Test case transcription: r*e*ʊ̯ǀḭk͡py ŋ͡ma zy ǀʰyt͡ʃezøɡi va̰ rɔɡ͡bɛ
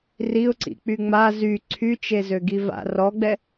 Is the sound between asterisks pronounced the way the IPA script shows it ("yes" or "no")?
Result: no